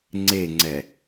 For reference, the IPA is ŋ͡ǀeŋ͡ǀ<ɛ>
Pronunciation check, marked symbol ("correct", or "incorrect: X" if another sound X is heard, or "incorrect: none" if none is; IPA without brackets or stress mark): correct